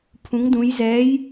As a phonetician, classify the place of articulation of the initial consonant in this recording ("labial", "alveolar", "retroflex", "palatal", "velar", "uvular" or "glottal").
labial